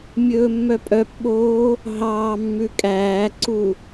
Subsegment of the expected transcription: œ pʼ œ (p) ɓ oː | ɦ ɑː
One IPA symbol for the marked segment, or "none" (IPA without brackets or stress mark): p